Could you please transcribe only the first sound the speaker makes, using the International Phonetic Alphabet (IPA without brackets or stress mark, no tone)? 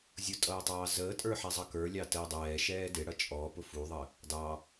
zʲ